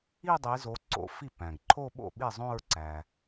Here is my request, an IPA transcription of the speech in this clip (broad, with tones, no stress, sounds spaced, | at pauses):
i˥˧ dˤ i˨˦ z o˨˦ ǀ o̰˨˦ f i˥˩ p æ̃˩ ɡ ǃʰ o˥˧ ɓ o̰˥˩ ɓ i˥˩ zˤ õ˥˧ ɹ ǀ æ˩